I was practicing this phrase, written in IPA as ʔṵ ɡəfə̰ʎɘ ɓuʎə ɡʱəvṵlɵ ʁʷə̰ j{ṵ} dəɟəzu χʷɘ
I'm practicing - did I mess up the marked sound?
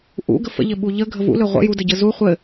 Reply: yes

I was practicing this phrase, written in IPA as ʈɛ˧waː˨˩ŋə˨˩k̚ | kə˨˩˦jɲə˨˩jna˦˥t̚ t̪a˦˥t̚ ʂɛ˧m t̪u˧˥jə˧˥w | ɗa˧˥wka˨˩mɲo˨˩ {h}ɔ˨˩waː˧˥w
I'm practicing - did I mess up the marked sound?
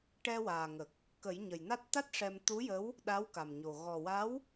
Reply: yes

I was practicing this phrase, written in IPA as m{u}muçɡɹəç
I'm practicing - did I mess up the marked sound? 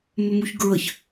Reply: yes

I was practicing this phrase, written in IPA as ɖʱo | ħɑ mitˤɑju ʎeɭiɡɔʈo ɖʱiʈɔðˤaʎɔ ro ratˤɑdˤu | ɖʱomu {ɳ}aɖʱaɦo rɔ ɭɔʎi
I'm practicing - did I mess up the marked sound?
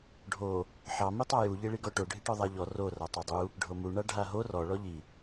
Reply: no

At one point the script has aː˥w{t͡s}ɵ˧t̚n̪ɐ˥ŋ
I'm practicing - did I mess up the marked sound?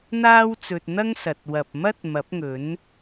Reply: no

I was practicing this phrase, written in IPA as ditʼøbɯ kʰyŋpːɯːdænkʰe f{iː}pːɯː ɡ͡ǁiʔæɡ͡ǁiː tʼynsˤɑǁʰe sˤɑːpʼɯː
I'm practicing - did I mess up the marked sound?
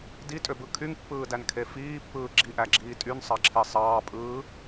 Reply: no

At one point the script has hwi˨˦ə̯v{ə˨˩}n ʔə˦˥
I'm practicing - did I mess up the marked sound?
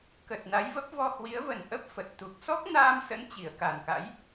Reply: no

